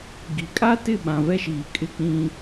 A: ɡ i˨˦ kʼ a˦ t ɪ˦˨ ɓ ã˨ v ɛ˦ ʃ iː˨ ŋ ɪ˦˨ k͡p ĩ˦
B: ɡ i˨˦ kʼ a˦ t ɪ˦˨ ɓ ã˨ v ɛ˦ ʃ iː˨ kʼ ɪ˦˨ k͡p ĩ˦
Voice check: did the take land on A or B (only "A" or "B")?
B